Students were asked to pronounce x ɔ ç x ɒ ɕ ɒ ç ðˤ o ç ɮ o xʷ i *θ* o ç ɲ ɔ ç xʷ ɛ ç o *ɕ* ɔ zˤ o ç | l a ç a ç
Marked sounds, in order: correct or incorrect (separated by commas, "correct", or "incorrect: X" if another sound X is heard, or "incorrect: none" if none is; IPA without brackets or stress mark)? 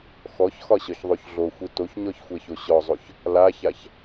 incorrect: t, correct